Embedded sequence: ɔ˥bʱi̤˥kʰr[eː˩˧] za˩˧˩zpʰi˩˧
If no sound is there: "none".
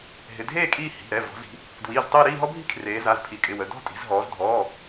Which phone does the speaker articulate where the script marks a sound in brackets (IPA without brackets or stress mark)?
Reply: eː˩˧